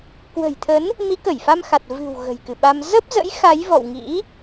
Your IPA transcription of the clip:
k w ə̤˨˩ j t̪ʰ ə˨˦ n | m i˨˦ k ə˧˩ j f a˧ m x a˨˩ t̚ v ɨ̤˨˩ w ɣ ə̤˨˩ j k ɨ˧˩ ɓ a˧ m z ə˦˥ p̚ z ə̰˧˥ j x a˨˦ j v ɔ̰˧˨ w ŋ ḭ˧˥

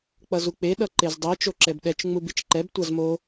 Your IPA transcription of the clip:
k͡p ʌ z u k͡p e ɗ ʌ ǃ e z dˤ i t͡ʃ o ǁ ɛ b ɗ ɛ t͡ʃ ŋ͡m u b i t͡ʃ ǃ ɛ b tʷ a z m o

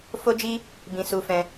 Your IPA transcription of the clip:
f o˦ d͡ʒ i˦ | b ĩ˧ s u˧ f ɛ̃˧

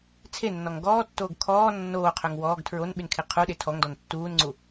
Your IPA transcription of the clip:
t͡sʰ e nː ɔ ŋ ɡ ɔː tː oː ɡ kʰ ɔː nː oː qʰ œ ŋ w ɔː ɡ tʰ ɹ o n ɓ y n kʰ e qʰ u ɗ e tʰ ɔ ŋ d ɔ n tː uː n ŋ͡ǀ u

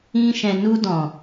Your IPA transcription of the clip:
ĩ˦ ʃ ɛ̃˧ n u˧ d ɔ̃˨

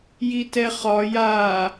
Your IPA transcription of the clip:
j i t ɛ χ ɒ j a

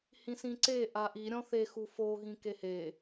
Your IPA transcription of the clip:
h ĩ s ĩ ǀ e ʔ a ʔ i ɾʲ ɔ̃ θ e x u f o ɣ ĩ k e h e

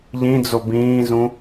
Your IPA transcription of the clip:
ʎ ĩ d͡z o b ĩː z ũ

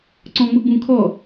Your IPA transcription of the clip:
ǀ ɔ̃ ŋ͡m ʊ ɡ͡b ũ kʰ ɔ

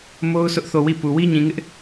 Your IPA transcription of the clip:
m o˦ ʊ̯ sʰ ʊ˦ ʔ θ o˦˨ w i˦˨ p u˨ w i˦ ɲ ĩ˨ ŋ ɪ˦ ʔ

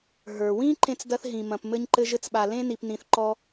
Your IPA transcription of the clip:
ɦ ə˞˩ w ĩ˥ ǃ ẽ˥ t͡s d ɐ˥ θ ɦ ĩ˨ m ɐ̃˨ p m ɘ˦ ɲ ǃ ɘ˦ ʒ ɘ˦ t͡s ɓ a˨ l ẽ˥ n i˨ p n ĩ˨ θ ǃ ɔ˦

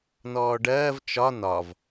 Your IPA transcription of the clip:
n ɔː ɖ ɜː v t͡ʃ ɒ n ɒ v

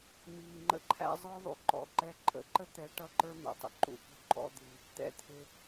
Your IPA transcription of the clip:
m iː˨ ŋ͡ǃ ə̰˧ ǃʰ æ̰˧ zˤ ə˞˦ ðˤ ṵ˨ ǃ ɔ̰˨ ǃ ɛ˧ ǃʼ ə̰˨˦ ǃ ə˦ t̪ ɛ˨˦ ʈ ʌ˦ ǃ ə˞˦ m ɛ̰˨ tˤ ə̰˦ ǃ ṵ˧ p ṳ˦˨ ǃʼ ɔ̰˦ d̪ i˧ | t̪ ɛ̰˧ t̪ʰ ɪ˧

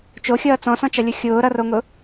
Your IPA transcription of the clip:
t͡ʃ o xʲ ʌː t͡s ɔ̃ s ɔ̃ t͡ʃ ʌ lʲ ʊ xʲ ʊː ɾ ʌ r o ŋ ʊ

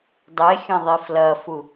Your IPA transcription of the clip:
dˤ e xʲ ɐ̃ ðˤ i f l ɐ f u

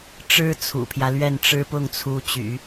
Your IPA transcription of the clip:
ʈ͡ʂ ɻ̩˥ t͡sʰ ṵ˨˩ pʰ j ä˦ l ɥ ɛ˥˩ n ʈ͡ʂ ɻ̩˥ p ʊ˥˩ ŋ t͡sʰ u˧˥ t͡ɕ y̰˨˩˦

